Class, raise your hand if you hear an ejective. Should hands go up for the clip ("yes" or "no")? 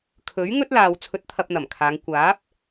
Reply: no